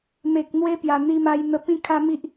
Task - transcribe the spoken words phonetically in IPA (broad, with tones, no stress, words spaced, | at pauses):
me˨k̚n̪we˧pja˨˩ n̪i˧ma˧jn̪ə˧ pĩ˦kʰa˦mi˦ʔ